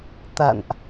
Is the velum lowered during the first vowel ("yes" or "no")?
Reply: no